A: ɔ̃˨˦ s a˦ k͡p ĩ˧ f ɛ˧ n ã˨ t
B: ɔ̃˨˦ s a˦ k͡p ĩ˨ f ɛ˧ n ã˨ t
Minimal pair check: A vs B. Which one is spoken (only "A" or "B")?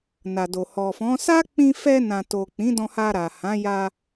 A